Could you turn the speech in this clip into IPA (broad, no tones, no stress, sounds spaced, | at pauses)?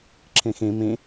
ǁʰ ĩ x ĩ m ĩ